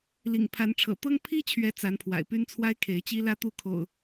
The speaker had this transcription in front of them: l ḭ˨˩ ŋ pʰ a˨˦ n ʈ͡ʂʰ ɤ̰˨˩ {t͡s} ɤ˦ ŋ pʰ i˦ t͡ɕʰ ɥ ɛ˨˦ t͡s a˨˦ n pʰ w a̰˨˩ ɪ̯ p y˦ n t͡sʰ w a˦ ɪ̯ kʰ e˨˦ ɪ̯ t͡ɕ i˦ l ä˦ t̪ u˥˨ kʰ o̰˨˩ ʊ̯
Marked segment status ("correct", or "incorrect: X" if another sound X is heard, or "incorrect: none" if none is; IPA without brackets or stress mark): incorrect: t̪